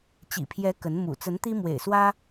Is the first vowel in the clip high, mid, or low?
high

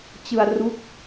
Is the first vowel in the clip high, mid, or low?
high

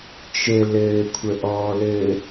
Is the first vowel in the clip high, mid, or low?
mid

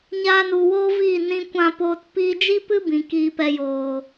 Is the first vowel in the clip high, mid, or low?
low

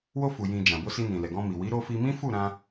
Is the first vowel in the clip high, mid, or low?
mid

